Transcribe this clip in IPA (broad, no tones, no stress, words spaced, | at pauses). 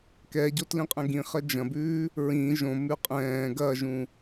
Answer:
kɛɟo tlĩqʼɛ̃ɡĩχɜ d͡ʒɐ̃bʉː | ɹĩ ʒõmʉ qʼɛ̃ː ɡɐʒũ